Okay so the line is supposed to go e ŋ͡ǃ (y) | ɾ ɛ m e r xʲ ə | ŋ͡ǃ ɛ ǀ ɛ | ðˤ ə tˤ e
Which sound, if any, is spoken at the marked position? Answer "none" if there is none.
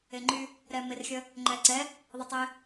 y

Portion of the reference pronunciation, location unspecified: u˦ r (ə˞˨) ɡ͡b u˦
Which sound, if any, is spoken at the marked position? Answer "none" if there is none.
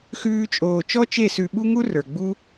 ə˞˨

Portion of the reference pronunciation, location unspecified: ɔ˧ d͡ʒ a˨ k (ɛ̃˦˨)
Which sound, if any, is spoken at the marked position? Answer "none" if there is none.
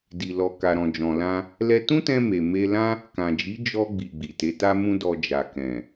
ɛ̃˨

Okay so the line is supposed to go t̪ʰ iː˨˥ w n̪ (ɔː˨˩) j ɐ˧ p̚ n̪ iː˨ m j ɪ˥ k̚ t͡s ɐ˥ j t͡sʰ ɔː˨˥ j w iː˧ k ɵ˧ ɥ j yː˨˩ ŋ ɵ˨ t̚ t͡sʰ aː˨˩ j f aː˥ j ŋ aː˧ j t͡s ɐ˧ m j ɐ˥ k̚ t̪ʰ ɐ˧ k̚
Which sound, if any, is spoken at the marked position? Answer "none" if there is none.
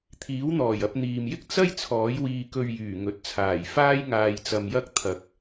ɔː˨˩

